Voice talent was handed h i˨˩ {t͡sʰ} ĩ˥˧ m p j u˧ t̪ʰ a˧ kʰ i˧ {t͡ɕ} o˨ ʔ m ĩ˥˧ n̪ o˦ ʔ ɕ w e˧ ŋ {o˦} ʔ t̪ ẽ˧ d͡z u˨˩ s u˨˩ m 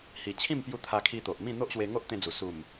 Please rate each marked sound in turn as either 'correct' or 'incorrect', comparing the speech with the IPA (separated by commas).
incorrect, incorrect, correct